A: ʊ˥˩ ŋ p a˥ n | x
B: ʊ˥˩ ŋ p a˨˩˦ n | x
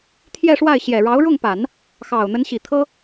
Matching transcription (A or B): B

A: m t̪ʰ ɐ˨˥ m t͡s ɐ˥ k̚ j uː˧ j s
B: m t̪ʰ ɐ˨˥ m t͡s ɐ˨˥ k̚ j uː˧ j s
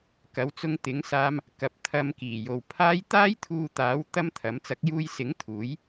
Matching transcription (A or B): B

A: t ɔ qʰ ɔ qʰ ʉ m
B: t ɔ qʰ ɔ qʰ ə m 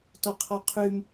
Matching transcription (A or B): A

